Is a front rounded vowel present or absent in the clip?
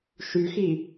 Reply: present